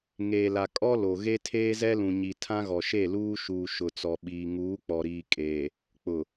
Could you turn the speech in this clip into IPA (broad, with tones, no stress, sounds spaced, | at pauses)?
ŋ eː˨ l a˨ kʼ ɔ˦ l o˨ ɣ e˦ tʰ eː˦ z ɛ˦ l ũ˨ ɲ i˨ tʰ ã˦ ɣ ɔ˨ ʃ e˦˨ l uː˦ ʃ uː˨ ʃ ʊ˨ t͡s ɔ˨ ɓ iː˨ ŋ uː˨˦ k͡p ɔ˨ ɾ iː˨ kʼ eː˨ | k͡p ʊ˨